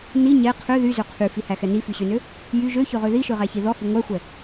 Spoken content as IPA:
n i ɲ ɛ qʰ ø ð y z ø qʰ y f i h æ x ɛ n i f y ɕ ø n ø | j y ʒ ø ç ø ʁ ø ð i ʃ ø ʁ æ ç i ð ɔ h i ŋʷ æ xʷ ɛ

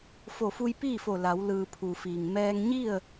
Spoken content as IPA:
f o˧˩ f u˧ j p iː˥˨ f o˧˩ l a˩˧ w l ɯː˩ pʰ u˩ f iː˩ ŋ m ɛː˧ ŋ ɲ i˥˨ ə̯

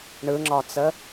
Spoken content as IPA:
ɳ ɯ ŋ͡ǁ ɒ t͡s ə

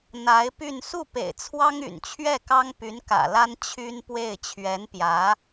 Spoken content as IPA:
n̪ a˧˥ ɪ̯ p y˥˧ n s u˥˩ p ḛ˨˩ ɪ̯ t͡sʰ w ɑ˥ ŋ y̰˨˩ n t͡ɕʰ ɥ ɛ˥˩ k ɑ˥ ŋ p y˧˥ n k ä̰˨˩ l a˥ n t͡ɕʰ y˥ n p w e˥˩ ɪ̯ t͡ɕʰ ɥ ɛ˧˥ n p j ä˧˥

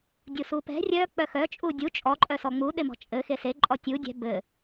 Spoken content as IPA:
dʲ u s u p ɛ̤ rʲ œ k͡p œ x œ t͡ʃʼ u dʲ u t͡ʃʼ ɔ ǃʼ œ s ɔ ŋ͡m u ɗ e m ɔ̤ t͡ʃʼ ɘ x e s e ǃʼ ɔ tʲ u dʲ ɛ̤ b ɘ

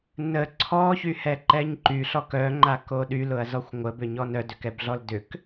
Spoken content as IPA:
n ə ǀʰ ɔ ç y h ɛ ǃ ɛ ɲ ǃ y ɬ ɔ k œ ŋ͡ǃ a k o ɗ y l ʊ ɐ̯ z ɔ xʷ ŋʷ ə b ʏ ɲ ɔ n œ d ʏ k ɛ b ɮ ɔ l d ʏ k

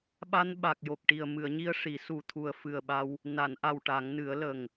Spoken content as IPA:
ɓ a˧ n ɓ a˨˩ k̚ j o˨˩ k̚ ʈ i˨˩ ə̯ m ɨ˨˩˨ ə̯ ɲ i˧ ə̯ ʂ i˨˩˦ s u˨˩ t̪ʰ u˨˩ ə̯ f ɨ˨˩ ə̯ ɓ a˧ w | n a˨˩˨ n ʔ a˨˩ w ʈ a˨˩˦ ŋ n ɨ˨˩˦ ə̯ l ə˨˩ ŋ

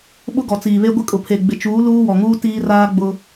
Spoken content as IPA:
ɓ ʊ˦ ɡ ɔ˨ t͡s iː˨ β e˦ ɡʷ ɪ˦ kʼ ʊ˨ pʰ e˨ ɡ͡b ɪ˨ t͡ʃ uː˨˦ l uː˦ w ɔ˨ ŋ uː˦ t iː˦ r aː˦ ɡ͡b ʊ˦

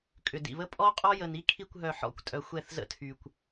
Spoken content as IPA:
kʼ ʏ˨ d ḭ˨ β ə˦ pʼ ɔ˦ qʼ ɔ˦ j ə˨ n i˦ kʰ i˦˨ kʷ ɦ œ˨ ħ ɔ̰˨ kʷ tʼ œ˨ xʷ ɛ˦˨ θ z ə̰˦ tʰ y˨ kʷ

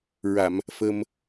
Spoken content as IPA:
ɹ a˨˩˨ m | f ə˧ m

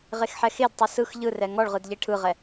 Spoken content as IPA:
ʁ e x ħ ɛ x e d tˤ ɯ s ɯ x ʎ ɯ r ɛ ŋ ɔ ɭ ʁ ɯ d ʎ e ʈʰ ɯ ʁ ɛ

